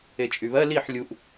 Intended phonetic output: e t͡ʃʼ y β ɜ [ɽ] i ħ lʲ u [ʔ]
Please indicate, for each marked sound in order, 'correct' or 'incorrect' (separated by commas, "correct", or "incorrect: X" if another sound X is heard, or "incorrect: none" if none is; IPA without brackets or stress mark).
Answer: incorrect: l, correct